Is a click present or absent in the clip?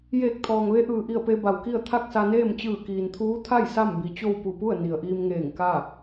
absent